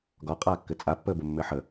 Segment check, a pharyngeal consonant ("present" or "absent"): present